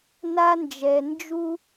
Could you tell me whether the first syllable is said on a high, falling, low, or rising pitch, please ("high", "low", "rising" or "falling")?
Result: high